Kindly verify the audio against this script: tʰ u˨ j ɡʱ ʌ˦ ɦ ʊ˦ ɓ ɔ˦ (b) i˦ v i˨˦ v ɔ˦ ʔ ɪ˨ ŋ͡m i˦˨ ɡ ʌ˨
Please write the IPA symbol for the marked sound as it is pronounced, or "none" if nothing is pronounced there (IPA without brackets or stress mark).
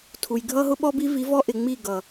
b